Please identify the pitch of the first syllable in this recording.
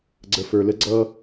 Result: low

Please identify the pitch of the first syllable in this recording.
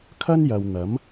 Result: high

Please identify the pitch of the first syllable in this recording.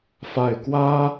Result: falling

